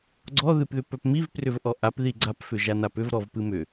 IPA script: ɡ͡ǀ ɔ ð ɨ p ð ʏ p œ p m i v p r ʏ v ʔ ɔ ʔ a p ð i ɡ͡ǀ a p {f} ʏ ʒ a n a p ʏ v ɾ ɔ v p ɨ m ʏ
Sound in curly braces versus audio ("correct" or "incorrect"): correct